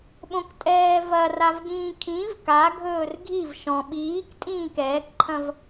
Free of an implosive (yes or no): no